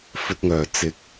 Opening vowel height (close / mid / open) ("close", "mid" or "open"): mid